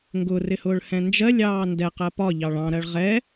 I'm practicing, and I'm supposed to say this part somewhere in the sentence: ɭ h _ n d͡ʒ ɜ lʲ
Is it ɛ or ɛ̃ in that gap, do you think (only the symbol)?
ɛ̃